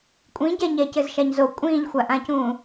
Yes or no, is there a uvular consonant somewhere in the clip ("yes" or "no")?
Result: no